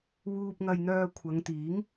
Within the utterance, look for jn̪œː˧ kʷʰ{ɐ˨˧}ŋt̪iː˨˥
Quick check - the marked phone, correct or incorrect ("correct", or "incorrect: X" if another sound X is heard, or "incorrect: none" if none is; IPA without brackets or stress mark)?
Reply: correct